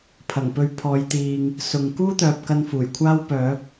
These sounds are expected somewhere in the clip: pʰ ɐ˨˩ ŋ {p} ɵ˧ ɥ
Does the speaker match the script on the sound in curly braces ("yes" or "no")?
yes